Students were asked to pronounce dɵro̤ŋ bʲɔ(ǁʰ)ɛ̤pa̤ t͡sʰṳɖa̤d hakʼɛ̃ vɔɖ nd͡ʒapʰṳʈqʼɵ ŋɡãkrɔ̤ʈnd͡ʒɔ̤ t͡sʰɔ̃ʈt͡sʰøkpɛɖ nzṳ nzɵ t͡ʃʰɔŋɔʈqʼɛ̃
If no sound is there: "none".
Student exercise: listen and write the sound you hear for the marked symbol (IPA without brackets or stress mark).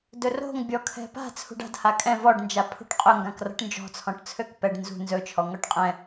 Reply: kʰ